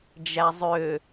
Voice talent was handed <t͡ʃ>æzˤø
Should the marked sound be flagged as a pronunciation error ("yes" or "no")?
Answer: yes